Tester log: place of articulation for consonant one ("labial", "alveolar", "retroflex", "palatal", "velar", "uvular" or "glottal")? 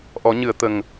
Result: glottal